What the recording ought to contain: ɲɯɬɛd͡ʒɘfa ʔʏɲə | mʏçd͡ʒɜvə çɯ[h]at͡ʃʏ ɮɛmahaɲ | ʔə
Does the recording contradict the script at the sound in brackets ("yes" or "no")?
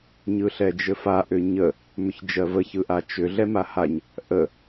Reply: yes